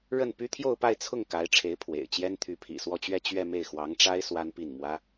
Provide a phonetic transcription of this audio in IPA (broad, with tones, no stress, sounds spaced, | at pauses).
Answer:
ɻ ə˥˩ n p y˥ t̪ʰ j o˥˧ ʊ̯ p a˥˧ ɪ̯ t͡sʰ ʊ˥˩ ŋ k a˧˥ ɪ̯ ʈ͡ʂʰ e˧˥ ɪ̯ pʰ w ḛ˨˩ ɪ̯ t͡ɕ j ɛ˥ n t̪ʰ y˧˥ pʰ ḭ˨˩ s w ɔ˥˧ t͡ɕ ɥ ɛ˥˧ t͡ɕ ɥ ɛ˥˧ m e˥˩ ɪ̯ x w ɑ˧˥ ŋ ʈ͡ʂ a˥ ɪ̯ s w a˥ n p i˥˩ n m w ä˥